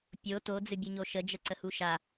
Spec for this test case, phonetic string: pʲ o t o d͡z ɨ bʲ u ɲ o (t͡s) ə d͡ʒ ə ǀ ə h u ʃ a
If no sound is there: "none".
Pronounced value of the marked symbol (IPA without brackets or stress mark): ʃ